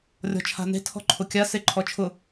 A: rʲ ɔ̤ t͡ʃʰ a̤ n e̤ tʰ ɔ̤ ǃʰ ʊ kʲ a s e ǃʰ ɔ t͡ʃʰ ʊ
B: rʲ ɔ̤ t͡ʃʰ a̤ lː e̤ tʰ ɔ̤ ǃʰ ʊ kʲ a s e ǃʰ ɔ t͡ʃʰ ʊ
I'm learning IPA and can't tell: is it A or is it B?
A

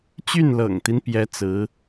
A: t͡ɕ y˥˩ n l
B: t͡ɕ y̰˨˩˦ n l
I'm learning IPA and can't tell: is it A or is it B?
A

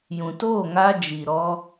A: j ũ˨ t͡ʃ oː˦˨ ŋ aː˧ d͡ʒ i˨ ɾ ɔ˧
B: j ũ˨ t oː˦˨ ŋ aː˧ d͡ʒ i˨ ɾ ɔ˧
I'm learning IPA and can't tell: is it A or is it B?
B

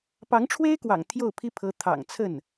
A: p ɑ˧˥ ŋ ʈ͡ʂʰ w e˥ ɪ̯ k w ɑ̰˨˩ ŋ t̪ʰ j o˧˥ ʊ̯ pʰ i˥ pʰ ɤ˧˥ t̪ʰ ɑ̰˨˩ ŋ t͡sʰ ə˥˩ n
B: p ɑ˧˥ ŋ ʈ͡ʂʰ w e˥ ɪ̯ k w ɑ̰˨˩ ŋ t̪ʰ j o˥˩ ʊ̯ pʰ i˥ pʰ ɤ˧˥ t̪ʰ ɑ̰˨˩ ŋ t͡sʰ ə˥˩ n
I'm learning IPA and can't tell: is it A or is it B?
B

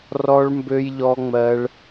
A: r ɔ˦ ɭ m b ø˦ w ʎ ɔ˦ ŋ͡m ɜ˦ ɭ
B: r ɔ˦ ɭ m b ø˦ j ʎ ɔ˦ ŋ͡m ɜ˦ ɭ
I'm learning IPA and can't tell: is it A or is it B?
B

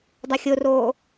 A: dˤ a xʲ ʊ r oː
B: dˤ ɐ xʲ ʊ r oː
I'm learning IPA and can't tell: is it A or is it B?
B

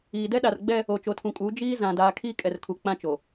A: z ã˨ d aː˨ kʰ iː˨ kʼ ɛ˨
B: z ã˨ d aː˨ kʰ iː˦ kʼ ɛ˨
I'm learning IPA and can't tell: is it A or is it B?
B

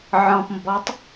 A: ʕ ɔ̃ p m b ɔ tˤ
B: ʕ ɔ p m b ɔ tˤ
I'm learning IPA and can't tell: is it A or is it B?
A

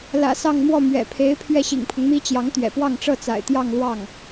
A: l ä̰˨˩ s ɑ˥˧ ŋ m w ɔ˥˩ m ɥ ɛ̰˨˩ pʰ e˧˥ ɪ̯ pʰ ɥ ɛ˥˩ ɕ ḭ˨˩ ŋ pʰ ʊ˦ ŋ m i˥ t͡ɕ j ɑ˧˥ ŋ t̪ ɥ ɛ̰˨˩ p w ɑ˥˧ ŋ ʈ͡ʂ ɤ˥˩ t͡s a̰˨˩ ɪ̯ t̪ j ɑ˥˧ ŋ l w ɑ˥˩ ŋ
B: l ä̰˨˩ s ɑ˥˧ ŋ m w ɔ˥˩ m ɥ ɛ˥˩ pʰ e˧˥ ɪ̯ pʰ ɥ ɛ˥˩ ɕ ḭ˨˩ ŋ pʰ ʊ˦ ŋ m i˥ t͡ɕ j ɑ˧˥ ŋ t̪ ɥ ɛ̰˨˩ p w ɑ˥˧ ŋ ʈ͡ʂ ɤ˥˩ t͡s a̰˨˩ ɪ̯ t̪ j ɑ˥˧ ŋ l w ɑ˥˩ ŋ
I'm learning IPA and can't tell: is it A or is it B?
A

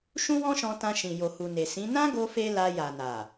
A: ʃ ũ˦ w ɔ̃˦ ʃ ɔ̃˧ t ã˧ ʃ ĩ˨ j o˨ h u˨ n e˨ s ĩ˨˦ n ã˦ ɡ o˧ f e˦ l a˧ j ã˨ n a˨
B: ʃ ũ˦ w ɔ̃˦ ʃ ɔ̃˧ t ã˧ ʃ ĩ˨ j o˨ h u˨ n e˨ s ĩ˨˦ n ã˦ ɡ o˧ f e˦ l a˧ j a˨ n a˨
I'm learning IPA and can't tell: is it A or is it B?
B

